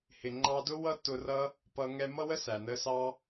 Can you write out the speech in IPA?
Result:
hɪ˨ŋ͡ǃɑ˧dʊ˦ wʌ˦tːʊ˧rʌ˦ | pʌ˧ ŋɛ˧mʌ˦ wə˦ sæ˨nə˧sɑ˦

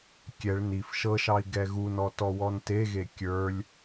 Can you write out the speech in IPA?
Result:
kʲɛɭ nif ʃɤʃɑi̯ ɡɛɣunɔ tɔwɔnteɣe kʲə˞lʲ

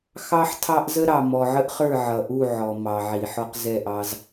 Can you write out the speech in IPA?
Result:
xɑ˦ħtʰɑ˦ʔ zə˦ɾɑ˨ mɔ˨ʕə˦ʔχə˞˦˨ ʕʌ˨ʔu˦˨ ʕɔ˨mɑ˨ʕi˨ ħɔ˦qzɛ˦˨ʔɑ˦z

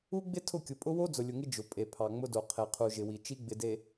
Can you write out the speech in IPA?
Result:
u˦ɡ͡bɪ˦ tʰʊ˦˨kʲʊ˨ pʼʊ˦wo˦ d͡zʊ˨lʲʊ˨ŋɪ˦ d͡ʒʊ˨ pʼe˨pʰɑ˨ŋ͡mʊ˦do˨ qʰe˨qʰu˨ʒɪ˨wi˨ t͡ʃi˦ɡ͡bɪ˨de˨

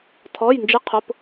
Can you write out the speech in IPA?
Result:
tʰɔ˩˧˩jnd͡ʒɪ˨˦ qʰʊ˩˧˩p

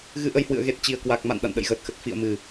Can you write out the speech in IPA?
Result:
ɣɨ˧ʔə˧jhwɨ̰˧˨ə̯ ɣe˨˩t̚t͡ɕi˨˩ə̯kwa˨˩k̚ ma̰˧˨n ɗa̰˧˨nɗə̰˧˨jɣəː˨˩t̚xə˨˩t̚ fḭ˧˨ə̯mɨ˨˩

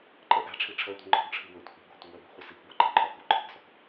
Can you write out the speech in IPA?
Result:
ǃʼɜʔæ̤ʈ͡ʂʰi ʈ͡ʂʰɜtʷi̤ ŋ͡ǃɔ̤ɡʈ͡ʂʰi wətʷæ̤ ɡʷi̤ɡɔ̤tʷəwɜ bi̤χʷəsikɡʷæ ǃʼə̤ǃʰɒɡɔ̤w ǃʰi̤ɡsɔk

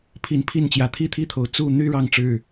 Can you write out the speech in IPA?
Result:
pʰi˨˦n pʰi˥˨nt͡ɕjä˨˦ t̪ʰi˥˨t̪ʰi˥˨t̪ʰo˨˩ʊ̯ t͡su˥˨n̪y˦ ɻɑ˥˨ŋʈ͡ʂɻ̩˥˨

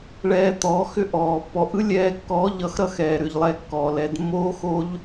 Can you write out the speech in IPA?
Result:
ɭɛː˧t̪ɔː˨˦x ʏ˦ʔɔː˨pːɔ˨˦ʔ ɯ˦lʲɛː˧kːɔː˨˦ʎʌ˨˦x ɾʌ˦xɛː˨ɾʏ˨ʎlˠɛ˧ kːɔː˨lɛ˧d mːoː˦xo˦ʎ

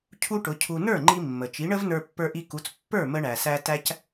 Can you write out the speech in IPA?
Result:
cʰu˥ʈʊ˩˥cʰu˧ nə˞˥˩ŋ͡ǃi˧ mːə˩ t͡ʃi˩˥ɳə˥v nə˞˧pːə˞˧ʔi˧ku˩˥t͡s pːə˞˥˩ mə˧ɳæ˩sæ˧ tæ˥c

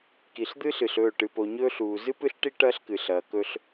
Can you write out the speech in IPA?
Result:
ki˨ɬd̪ɨː˦ɬ ɨ˨ɬɵː˦˨ ʈɨ˨po˨ɲɵː˦ɬuː˨ zɨ˦pɨ˦ɬʈi˦ ʈɐː˦ɬkɨ˨ɬɐː˨ kɵ˦ɬ

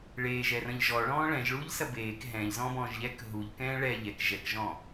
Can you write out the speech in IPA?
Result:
ɭeːʒɛrɐ̃ʎ ʒɔɭɔ̃ː ɭɛ̃ʒɭuːʎsɐ beːk ɦɛ̃ːʎzɔ̃ːbɔ̃ːʒ ʎɛk ɦuʎkɛ̃ː ɭɛ ʎɛk ʒɛkʒɔ̃ː

